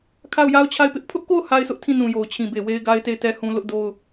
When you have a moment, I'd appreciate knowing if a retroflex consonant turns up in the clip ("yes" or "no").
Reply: no